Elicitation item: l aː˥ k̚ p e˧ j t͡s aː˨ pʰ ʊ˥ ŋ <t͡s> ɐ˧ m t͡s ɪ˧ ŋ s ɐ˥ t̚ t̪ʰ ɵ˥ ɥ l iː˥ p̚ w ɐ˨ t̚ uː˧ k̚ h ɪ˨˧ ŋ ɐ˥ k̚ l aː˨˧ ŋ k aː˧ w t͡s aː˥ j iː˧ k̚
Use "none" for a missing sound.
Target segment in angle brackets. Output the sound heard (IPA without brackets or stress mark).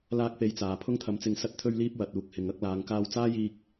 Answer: t̪ʰ